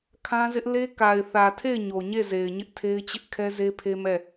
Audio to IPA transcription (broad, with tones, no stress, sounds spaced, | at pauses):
kʰ ã˦ z ɪ˦ ʔ l e˦ k a˨ ɪ̯ θ ä˨ tʰ e˦˨ ɪ̯ ɲ o˨ ɲ e˦˨ z e˨ ɪ̯ ɲ ɪ˦ ʔ tʰ e˦ ɪ̯ t͡ɕ ɪ˦ ʔ kʰ ɛ˦ z e˦ pʰ e˦ m ɛ˦˨